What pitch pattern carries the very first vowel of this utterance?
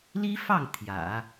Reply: high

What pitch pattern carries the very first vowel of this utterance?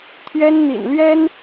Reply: high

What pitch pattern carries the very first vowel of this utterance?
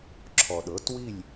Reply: low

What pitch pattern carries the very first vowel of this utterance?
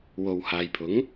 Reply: low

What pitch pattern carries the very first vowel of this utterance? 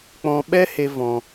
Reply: high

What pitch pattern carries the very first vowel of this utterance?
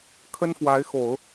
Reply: high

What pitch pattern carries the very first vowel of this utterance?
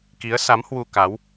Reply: rising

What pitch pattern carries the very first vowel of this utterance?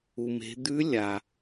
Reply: low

